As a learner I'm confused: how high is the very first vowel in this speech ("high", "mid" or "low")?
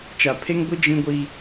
low